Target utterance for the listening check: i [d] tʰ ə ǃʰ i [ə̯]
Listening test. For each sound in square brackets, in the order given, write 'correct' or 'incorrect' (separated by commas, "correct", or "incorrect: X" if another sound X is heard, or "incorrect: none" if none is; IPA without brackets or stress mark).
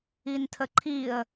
incorrect: n, correct